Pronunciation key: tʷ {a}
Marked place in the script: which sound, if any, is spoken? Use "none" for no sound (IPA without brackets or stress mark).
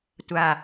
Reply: a